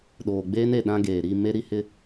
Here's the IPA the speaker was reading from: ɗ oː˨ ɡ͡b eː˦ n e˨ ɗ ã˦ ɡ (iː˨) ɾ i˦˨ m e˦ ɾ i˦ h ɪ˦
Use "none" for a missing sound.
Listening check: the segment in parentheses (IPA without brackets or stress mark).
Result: eː˨